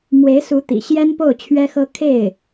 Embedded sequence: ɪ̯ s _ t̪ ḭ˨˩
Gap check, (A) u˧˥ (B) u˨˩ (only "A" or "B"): A